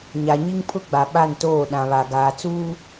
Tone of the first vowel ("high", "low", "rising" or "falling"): low